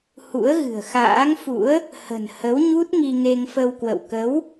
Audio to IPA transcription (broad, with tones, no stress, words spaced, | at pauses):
hṵ˧˥ə̯ɣɨ̤˨˩ə̯xa̰ː˧˥ŋfṵ˧˥ə̯ | hə̤˨˩n hə˨˦wɲu˦˥t̚ ŋi˧ŋe˧ŋfə˧wkwə̰˧˨w kə˨˦w